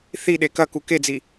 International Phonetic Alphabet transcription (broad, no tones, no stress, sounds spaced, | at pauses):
θ i ɗ e k ɐ k u k e d͡z i